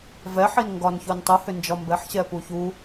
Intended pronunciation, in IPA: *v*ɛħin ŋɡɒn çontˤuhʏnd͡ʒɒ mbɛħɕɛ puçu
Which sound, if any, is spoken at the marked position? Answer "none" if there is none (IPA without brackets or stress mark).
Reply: v